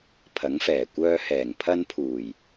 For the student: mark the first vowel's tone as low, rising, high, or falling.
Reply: rising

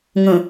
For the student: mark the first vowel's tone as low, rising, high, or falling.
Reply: low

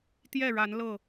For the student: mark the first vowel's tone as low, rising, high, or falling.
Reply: falling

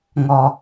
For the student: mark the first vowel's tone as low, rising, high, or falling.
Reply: low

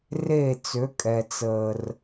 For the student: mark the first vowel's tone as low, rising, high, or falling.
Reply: falling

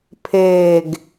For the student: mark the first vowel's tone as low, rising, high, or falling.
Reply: low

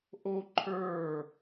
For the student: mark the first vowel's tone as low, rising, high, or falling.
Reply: high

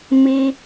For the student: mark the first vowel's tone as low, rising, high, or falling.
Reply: high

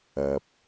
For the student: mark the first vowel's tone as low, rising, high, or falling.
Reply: low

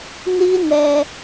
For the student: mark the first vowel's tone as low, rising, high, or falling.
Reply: high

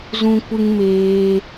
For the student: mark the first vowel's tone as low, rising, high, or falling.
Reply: high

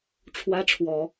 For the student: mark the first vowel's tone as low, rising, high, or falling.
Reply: high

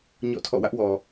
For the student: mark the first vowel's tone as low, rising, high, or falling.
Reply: falling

